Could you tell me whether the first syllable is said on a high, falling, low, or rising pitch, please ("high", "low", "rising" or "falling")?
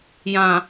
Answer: low